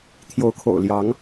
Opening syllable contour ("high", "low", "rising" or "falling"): rising